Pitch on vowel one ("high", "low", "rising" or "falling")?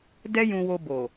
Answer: high